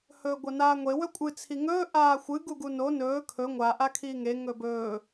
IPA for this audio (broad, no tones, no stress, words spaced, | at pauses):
hɵːɡʷɐnaːŋʷe wɵkʷʼɨ t͡sʰiŋɵː ʔaːxʷɨ ɡuɡuno nɵː kʰɵ ŋʷa ʔakʰiːŋe ŋɵbɵː